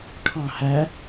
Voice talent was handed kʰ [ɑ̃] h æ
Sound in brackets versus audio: correct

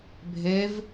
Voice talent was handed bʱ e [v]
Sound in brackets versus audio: correct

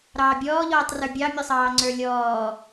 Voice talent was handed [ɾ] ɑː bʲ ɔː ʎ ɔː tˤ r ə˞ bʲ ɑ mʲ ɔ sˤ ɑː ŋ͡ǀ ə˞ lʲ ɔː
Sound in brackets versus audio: correct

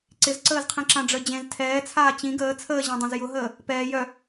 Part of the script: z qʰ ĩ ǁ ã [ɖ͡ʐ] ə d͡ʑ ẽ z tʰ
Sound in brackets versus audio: correct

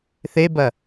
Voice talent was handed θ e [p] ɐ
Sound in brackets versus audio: incorrect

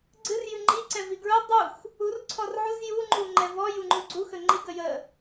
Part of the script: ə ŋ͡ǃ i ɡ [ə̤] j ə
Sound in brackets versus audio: incorrect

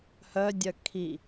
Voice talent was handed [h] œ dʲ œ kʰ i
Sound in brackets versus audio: correct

